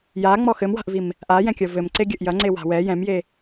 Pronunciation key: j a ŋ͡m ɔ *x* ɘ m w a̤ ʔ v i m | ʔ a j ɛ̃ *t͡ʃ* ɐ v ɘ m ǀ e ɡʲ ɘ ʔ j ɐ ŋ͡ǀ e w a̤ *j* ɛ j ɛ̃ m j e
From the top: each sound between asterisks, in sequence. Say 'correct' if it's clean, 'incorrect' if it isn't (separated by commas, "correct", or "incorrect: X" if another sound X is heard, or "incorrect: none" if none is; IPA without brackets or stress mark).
correct, incorrect: kʲ, incorrect: w